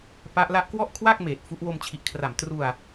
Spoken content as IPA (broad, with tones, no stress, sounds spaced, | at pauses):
p a˦˥ ʔ l a˥˩ ʔ k w ɔ˥˩ ʔ kʰ w a˥˩ k̚ m eː˨˩ t̚ f u˦˥ ʔ w o˧ m t͡ɕʰ i˨˩ ʔ kʰ r a˨˩ m t r u˧ a̯